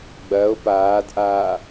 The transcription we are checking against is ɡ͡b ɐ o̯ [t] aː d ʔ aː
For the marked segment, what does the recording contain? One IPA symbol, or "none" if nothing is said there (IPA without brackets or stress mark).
p